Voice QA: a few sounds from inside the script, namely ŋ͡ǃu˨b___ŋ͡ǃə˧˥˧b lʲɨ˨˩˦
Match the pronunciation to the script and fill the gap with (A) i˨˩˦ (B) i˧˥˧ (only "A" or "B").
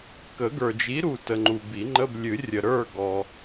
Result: A